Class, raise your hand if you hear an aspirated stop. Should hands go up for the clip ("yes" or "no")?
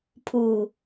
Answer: yes